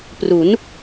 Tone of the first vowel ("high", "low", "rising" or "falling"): rising